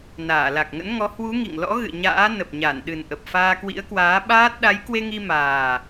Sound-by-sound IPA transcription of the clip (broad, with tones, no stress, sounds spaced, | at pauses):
n aː˧˩ l a˨˩ k̚ ŋ ə̰˧˥ n ŋ ɔ˨˦ h w u˨˦ ŋ ḭ˧˨ ŋ l ɔ̰˧˥ ɣ ɨ̰˧˨ ɲ a̰ː˧˥ n ə˨˩ p̚ ɲ a˧˩ n ɗ ɨ˨˩ n ʔ ə˨˩ p̚ f aː˧ k w ḭ˧˥ ə̯ k w aː˨˦ ɓ aː˦˥ t̚ ɗ a˨˦ j k w e˧ ŋ i˧ m aː˨˩